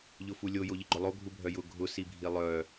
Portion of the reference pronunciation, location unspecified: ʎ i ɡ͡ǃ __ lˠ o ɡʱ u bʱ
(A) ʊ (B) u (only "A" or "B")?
A